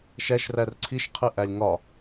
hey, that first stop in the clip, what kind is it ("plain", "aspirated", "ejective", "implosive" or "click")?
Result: click